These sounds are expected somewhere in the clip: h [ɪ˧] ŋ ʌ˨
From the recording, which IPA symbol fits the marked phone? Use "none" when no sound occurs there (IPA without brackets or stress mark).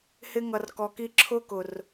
ɪ˧